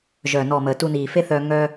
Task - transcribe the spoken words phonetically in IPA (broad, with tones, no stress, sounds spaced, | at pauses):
ʒ œː˨ n ɔ˨ m əː˨ t u˧ n iː˨ f e˦ θ œː˧ ŋ œː˧